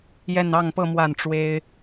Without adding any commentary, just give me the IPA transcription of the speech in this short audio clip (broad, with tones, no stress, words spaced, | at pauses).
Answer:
jɛ˥˧nɑ˥˧ŋpɤ˥˧ mwa˥˩nʈ͡ʂwe˥ɪ̯